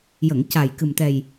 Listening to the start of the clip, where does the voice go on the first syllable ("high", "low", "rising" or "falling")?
low